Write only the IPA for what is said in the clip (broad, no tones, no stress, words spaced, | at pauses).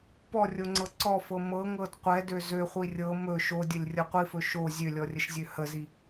pɔrʲoŋ͡ǀɤ ǀɔfɤ mɤŋɤd qʷɛdø zøχʷi rʲɤ mɵ ʃodʲəlʲrʲɤ qʷifɵ ʃo zʲølʲɔrʲəʃzʲø həzi